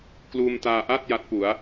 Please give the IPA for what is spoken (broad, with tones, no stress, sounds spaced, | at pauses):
k l uː˧ m t aː˧ ʔ a˥˩ t̚ j a˦˥ t̚ p u˩˦ a̯